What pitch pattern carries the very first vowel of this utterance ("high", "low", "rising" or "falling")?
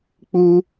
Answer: high